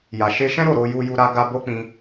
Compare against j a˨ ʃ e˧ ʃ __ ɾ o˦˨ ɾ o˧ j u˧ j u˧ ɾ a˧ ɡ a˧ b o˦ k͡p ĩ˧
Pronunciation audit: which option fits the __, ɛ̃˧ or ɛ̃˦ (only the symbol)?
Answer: ɛ̃˦